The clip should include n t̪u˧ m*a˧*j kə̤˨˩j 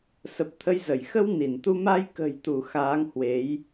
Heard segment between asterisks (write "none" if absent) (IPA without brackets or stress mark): a˧